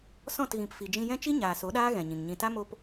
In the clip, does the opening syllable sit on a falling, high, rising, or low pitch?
falling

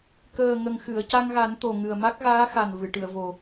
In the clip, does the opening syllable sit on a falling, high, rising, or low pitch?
low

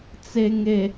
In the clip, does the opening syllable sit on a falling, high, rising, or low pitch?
low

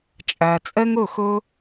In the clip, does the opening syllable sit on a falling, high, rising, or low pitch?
low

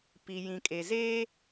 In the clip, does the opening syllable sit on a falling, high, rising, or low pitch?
low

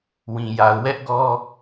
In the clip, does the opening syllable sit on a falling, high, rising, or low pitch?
low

